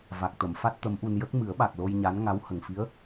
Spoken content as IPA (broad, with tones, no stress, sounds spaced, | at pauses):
v a˨˩ k̚ t̪ ə˨˩˨ m f a˦˥ t̚ t̪ ə˧˥ m ʔ u˧ n j ə˦˥ k̚ m ɨ˨˩˦ ə̯ ɓ a˨˩ k̚ l o˧ j ɲ a˧˥ n ŋ a˧˥ w h ə˨˩ ŋ f i˧˥ ə̯